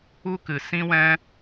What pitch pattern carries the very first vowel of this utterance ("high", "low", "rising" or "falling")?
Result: high